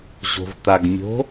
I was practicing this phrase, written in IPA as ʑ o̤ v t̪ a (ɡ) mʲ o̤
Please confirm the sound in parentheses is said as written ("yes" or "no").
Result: yes